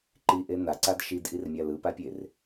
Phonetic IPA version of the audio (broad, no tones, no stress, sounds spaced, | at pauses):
ǃ i ʔ e n a ǀ a d ʃ i d ʔ i r mʲ a l ɯ p a pʲ e r